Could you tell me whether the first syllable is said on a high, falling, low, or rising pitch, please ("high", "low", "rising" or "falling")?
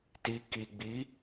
low